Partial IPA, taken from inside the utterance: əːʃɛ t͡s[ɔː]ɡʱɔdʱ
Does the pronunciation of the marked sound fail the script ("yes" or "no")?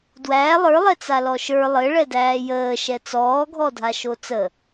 no